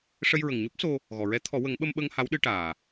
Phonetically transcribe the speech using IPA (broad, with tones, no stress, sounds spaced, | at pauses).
ʂ ə˧ j ɹ ə˨˩ ŋ ɲ o˦˥ p̚ s o˧ | ɣ ɔ˨˩˨ ɹ ɛ˧˥ t̪ʰ ɔ˨˩˦ w ə˨˩˦ ŋ ɓ ə˧ m ɓ ə˧ ŋ h a˧˥ w ɗ ɨ˧ ʈ aː˨˩